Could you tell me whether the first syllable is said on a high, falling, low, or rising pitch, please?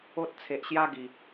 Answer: high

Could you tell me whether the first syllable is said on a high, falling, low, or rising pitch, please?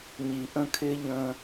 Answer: low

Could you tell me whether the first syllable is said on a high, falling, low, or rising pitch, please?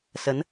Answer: rising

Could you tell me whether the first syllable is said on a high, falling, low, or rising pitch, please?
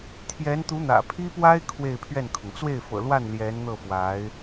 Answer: rising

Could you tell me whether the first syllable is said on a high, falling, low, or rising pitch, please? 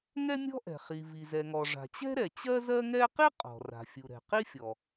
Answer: high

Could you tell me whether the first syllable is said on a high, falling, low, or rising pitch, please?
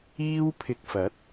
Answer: high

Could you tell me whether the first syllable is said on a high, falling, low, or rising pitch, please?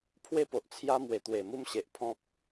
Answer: high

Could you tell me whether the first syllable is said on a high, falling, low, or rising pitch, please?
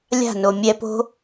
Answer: falling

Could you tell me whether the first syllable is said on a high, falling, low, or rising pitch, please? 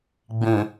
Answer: low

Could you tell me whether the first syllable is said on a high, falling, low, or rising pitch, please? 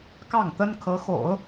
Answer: falling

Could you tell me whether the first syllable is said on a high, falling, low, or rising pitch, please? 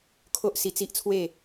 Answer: high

